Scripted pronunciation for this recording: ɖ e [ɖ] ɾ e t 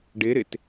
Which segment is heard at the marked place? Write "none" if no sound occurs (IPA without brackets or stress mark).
none